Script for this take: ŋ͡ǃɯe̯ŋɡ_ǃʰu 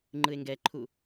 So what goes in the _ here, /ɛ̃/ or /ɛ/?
ɛ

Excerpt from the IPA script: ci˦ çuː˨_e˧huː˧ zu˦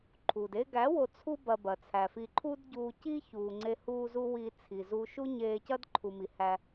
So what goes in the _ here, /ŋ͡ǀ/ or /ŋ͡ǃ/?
ŋ͡ǀ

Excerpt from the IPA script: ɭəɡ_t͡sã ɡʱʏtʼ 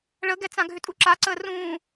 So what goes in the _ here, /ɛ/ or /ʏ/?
ɛ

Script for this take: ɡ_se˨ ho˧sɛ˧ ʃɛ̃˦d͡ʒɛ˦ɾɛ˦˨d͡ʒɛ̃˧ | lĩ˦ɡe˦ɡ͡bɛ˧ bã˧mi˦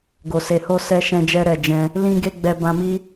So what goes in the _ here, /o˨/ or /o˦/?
o˨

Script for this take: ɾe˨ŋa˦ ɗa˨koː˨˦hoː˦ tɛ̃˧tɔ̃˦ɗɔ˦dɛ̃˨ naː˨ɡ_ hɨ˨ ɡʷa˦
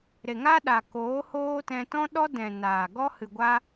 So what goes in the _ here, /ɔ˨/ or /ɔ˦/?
ɔ˦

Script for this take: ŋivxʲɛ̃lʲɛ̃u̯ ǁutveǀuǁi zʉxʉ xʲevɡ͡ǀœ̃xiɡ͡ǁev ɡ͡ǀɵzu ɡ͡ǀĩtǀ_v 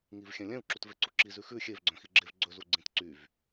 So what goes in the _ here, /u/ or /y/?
y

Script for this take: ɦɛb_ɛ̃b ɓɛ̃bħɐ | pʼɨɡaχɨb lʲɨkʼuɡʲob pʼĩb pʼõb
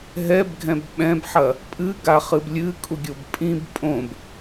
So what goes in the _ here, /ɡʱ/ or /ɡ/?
ɡʱ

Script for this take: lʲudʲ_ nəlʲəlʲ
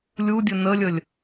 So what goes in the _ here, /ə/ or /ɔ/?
ə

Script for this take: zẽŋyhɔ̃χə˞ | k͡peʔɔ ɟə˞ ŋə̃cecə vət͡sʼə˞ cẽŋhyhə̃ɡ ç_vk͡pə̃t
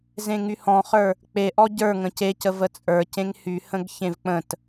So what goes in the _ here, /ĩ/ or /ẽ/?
ẽ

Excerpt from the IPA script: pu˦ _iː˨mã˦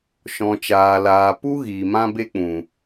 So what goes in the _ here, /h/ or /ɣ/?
ɣ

